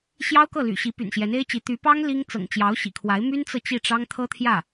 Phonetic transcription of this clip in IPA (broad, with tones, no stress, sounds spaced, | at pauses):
ɕ j ɑ˥ ʊ̯ k ɤ˥˩ l y̰˨˩ ɕ i˧˥ p y̰˨˩ n ɕ j ɛ˧˥ n e˥ ɪ̯ t͡ɕ i˧˥ t̪ y˧˥ p ɑ˥ ŋ l i˥ ŋ t͡s ɤ̰˨˩ ŋ t͡ɕ j ɑ˧˥ ʊ̯ ɕ ḭ˨˩ kʰ w a˧˥ ɪ̯ m y˥ n t͡s ɤ˨ t͡ɕ i˥˩ ʈ͡ʂ ɑ˥ ŋ t̪ʰ ɤ˥ t̪ʰ j ä˥˩